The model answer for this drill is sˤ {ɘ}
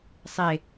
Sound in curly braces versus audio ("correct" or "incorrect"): incorrect